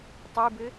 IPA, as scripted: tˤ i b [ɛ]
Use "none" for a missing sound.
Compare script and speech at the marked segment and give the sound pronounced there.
ɘ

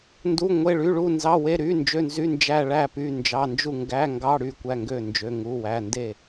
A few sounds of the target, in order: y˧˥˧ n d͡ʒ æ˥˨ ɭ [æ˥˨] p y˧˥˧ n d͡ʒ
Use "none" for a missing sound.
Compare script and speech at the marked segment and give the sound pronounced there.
æ˥˨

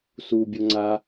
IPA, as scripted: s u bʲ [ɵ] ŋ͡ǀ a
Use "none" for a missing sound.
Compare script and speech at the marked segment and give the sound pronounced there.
o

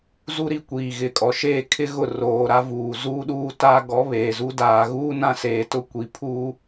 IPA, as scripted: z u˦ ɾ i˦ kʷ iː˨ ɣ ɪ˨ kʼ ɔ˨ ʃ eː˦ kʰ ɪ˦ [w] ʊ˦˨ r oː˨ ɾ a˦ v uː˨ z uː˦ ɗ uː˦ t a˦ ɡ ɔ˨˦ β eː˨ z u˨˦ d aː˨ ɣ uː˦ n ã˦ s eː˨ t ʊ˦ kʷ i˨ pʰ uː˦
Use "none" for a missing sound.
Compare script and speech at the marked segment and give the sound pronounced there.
ɣ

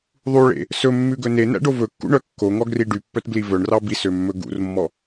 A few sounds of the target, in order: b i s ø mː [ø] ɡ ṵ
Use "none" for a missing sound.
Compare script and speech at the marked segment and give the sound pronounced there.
ɵ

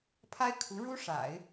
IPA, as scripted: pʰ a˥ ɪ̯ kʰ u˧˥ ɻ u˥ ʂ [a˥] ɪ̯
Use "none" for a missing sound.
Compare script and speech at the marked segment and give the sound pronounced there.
a̰˨˩˦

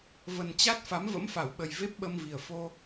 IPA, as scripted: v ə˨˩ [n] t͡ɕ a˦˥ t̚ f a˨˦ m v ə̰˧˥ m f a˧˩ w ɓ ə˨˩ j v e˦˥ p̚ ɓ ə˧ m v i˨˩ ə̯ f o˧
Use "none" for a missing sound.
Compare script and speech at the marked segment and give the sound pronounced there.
n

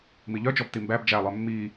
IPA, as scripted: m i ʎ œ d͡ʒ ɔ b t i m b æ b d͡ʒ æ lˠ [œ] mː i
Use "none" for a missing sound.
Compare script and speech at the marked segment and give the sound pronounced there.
œ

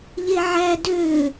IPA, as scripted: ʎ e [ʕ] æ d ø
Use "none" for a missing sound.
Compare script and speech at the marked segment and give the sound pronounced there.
ʕ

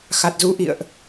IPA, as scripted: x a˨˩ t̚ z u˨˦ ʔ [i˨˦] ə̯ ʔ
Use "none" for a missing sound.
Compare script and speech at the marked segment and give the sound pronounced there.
ḭ˧˨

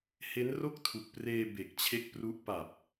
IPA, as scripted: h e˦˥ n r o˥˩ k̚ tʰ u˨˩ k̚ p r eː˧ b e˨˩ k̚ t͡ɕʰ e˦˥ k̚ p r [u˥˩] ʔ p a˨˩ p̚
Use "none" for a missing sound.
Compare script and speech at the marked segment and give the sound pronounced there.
u˦˥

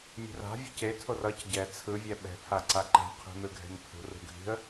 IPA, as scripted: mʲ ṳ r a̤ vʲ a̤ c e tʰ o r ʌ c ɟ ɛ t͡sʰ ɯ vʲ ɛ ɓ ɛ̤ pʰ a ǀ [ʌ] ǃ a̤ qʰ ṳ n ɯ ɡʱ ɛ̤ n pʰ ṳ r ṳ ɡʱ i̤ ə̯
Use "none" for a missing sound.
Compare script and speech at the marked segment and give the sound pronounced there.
a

